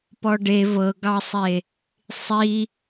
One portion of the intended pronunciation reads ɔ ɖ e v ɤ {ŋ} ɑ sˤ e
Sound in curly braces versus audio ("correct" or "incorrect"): incorrect